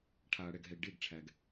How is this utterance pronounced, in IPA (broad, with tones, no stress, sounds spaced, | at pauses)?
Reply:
ʈʰ aː˨ ɽ ɛ˨ ɡ ɦ ɛ˨ ɡ ɖ e˦˨ ɡ ʈ͡ʂʰ æ˨ ɡ